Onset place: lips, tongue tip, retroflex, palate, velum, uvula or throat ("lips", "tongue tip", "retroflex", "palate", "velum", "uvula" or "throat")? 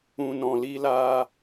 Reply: tongue tip